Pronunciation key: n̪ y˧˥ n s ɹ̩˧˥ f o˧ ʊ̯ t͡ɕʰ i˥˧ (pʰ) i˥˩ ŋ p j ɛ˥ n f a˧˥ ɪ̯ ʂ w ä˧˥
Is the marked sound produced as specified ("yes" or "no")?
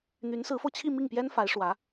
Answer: no